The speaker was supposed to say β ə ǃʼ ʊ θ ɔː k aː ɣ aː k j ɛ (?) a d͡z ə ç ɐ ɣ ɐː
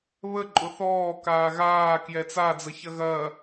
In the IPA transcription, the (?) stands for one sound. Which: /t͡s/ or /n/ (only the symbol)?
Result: t͡s